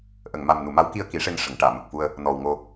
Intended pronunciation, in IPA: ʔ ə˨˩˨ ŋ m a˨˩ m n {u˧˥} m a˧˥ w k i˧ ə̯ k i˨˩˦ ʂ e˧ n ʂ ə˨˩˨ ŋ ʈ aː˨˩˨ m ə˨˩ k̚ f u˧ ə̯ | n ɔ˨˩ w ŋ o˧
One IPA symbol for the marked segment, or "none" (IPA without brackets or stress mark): u˨˩˨